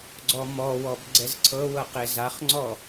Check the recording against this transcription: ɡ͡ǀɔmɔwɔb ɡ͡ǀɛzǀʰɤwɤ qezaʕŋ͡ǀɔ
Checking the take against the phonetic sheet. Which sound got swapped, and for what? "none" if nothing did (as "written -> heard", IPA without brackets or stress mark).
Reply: ʕ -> χ